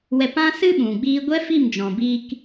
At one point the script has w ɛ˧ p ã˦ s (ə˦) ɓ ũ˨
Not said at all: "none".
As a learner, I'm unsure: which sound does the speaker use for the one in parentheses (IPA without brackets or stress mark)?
ɨ˦